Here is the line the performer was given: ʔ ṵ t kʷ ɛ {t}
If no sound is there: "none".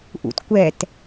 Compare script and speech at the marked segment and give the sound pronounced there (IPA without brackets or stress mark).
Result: t